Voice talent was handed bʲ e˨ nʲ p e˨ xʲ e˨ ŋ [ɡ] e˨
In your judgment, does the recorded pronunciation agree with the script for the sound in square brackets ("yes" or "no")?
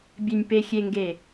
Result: yes